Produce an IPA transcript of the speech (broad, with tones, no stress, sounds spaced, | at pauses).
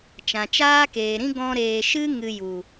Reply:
t͡ʃ ã˨ t͡ʃ aː˦ k eː˨ ɾ ĩ˦ ɡ ɔ̃˧ ɾ eː˨ ʃ ɨ˦ ŋ ɨ˧ j u˨